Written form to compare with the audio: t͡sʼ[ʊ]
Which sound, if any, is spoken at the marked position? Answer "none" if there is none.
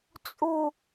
u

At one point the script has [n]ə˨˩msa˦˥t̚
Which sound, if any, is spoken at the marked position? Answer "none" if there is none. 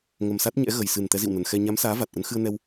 ŋ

